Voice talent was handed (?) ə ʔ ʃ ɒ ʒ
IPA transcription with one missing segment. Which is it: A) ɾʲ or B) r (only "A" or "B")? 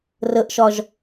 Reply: B